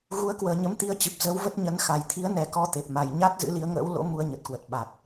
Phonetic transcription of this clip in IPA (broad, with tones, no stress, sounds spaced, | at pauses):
ɣ u˨˦ ə̯ k w əː˨˩ ɲ ə˨˦ m t̪ i˧ ə̯ t͡ɕ ɨ˨˩ p̚ z ə˨˦ w v ə˦˥ t̚ ɲ ə˨˦ n x a˨˩ j t̪ʰ i˨˦ ə̯ n ɛ˨˩ k ɔ˨˦ t̪ e˨˩ p̚ m a˨˩ j ɲ a˦˥ t̚ z ɨ̰˧˥ l i˨˦ ə̯ ŋ ə̰ː˧˥ w l o̰˧˥ m u˧ ə̯ ɲ ə˨˩ t̚ k w ə˨˩ t̚ ɓ a˨˩ t̚